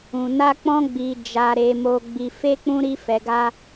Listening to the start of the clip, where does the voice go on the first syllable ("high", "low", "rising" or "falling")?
low